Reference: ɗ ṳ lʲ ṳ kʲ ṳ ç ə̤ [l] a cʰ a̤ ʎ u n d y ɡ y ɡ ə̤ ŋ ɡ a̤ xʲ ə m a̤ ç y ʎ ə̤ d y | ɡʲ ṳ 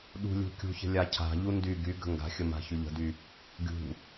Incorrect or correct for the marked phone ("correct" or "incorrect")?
incorrect